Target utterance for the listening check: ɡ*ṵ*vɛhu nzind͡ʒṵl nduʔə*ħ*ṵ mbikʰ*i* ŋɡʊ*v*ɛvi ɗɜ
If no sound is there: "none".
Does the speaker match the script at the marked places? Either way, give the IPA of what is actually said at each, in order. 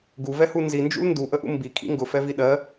u, ʔ, ḭ, f

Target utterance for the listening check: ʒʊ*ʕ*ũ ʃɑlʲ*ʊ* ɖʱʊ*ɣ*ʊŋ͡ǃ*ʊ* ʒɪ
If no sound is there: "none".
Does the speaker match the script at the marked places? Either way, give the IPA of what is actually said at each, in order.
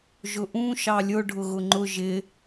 ʔ, ʊ, ɣ, ʊ

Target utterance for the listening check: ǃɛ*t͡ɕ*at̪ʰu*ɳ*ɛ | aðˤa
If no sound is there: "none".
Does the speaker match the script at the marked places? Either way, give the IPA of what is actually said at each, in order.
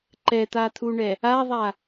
t̪, ɳ

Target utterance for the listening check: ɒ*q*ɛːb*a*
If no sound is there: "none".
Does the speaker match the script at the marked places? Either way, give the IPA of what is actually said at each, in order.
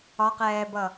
q, ʌ

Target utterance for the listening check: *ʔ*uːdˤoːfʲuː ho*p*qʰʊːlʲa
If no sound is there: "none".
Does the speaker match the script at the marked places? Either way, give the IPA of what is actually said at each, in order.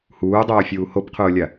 h, p

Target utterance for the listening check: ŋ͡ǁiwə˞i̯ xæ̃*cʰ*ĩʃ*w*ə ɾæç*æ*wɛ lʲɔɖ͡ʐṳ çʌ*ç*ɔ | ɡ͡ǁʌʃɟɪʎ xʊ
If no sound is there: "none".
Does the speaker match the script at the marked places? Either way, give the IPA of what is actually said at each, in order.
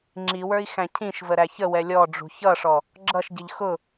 cʰ, v, ə, ʂ

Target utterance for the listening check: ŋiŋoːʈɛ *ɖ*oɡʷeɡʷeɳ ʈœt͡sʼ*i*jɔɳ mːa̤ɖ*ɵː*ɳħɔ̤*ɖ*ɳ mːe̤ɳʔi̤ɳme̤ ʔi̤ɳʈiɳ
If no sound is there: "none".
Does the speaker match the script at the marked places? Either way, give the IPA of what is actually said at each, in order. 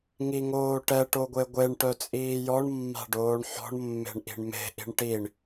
ʈ, iː, oː, none

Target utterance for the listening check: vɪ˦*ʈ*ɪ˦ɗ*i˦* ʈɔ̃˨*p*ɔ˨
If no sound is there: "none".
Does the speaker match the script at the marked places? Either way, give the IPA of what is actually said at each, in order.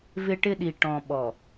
ʈ, i˨, ɓ

